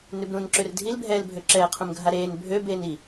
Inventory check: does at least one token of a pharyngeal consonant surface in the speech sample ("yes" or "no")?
no